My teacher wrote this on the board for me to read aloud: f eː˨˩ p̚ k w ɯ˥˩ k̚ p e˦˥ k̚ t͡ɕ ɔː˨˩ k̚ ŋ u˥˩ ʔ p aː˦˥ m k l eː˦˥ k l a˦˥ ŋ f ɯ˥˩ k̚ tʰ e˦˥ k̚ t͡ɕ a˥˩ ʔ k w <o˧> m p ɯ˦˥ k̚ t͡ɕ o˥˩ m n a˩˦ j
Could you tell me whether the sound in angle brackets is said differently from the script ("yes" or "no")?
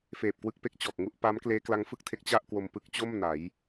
no